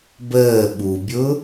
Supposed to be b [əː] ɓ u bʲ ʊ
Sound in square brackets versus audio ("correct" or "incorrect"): correct